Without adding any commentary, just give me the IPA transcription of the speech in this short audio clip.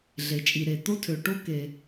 ɮ e˩ t͡ʃʼ i˩ ɾ e˩ t̪ o˥ tʰ ø˩ ʈ o˥ k e˩

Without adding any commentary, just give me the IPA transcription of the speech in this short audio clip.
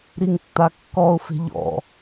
ɾ i ŋ tː a kː ɔ ʊ̯ f e̤ ʎ ɔ̰

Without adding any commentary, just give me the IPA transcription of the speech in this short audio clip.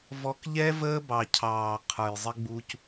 v ɔ˨ k ʎ ɛ˦ v əː˦ b ɑ˨ cʰ ɑː˨ qʰ ə˞˨ j zˤ ɪ˦ ɡ͡b u˦ c

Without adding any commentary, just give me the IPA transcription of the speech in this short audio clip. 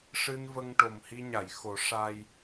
ʂ ɨ˧ n v ə˧ ŋ ʈ o˨˩ m h i˧ ɲ a˨˩˨ j x o˨˩˦ ʂ a˧ j

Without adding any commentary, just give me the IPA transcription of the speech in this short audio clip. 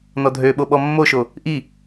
n ɔ dʱ ø ɓ o ɓ ɔ mː o ʃ o | ʔ i

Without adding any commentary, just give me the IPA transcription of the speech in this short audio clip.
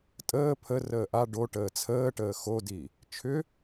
tʼ əː pʰ ə r əː ʔ a ɖ o ʈ əː t͡sʰ əː ʈ əː x o d i | t͡ʃʰ ʏ

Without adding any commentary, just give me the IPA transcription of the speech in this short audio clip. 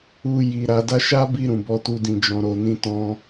u˧ j i˨ ɾ a˨ d a˧ ʃ a˦ b i˧ ɾ ũ˨ b ɔ˧ t u˧ d ĩ˨ d͡ʒ ɔ̃˨ ɾ o˨ n ĩ˧ t ɔ̃˧

